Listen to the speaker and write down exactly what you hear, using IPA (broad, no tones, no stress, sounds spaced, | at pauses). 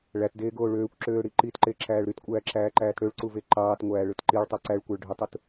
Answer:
ɭ æ t d eː ɡ oː ɭ øː kʷ ǁ øː ɽ i ǃ i t ǃ e ǁ æː ɭ ɾ y t kʷʼ æː ǁ æː ǃ æː t ɽ ø ɭ ǀ u v e ǃ ɑː t ŋʷ æː ɭ ɯ t ǃ i ɭ tˤ u ǀ æ ɭ kʷ æ ɭ ɖʱ y tˤ u t